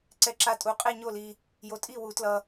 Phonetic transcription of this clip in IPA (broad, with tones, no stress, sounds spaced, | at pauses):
ǀ ɛ˧ ǁ a˧ tʼ u˨˥ qʼ e˥˧ ɲ o˥˧ l i˧ | j o˧ tʼ i˥˧ w u˨˥ t l ʌ˧